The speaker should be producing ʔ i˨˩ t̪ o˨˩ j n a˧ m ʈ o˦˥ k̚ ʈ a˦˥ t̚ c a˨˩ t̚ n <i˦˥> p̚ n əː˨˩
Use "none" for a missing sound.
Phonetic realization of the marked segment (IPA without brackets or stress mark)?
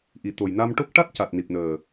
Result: i˨˩